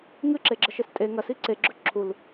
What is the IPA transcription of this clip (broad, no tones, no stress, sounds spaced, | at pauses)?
ŋ ɨ ǁ e ɡ͡ǁ ɐ ʃ e s tʼ e ŋ ɐ s i ǀ e ɡ͡ǁ ɵ ǁʰ u l